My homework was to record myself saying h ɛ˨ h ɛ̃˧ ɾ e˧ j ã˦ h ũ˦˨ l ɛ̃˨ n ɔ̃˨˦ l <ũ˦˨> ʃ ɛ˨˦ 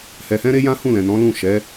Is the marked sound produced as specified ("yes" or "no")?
yes